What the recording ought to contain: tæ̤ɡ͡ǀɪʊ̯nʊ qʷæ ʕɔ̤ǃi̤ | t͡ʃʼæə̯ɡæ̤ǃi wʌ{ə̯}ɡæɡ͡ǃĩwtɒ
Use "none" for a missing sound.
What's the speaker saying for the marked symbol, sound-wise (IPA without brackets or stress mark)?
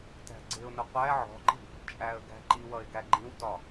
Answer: ɪ̯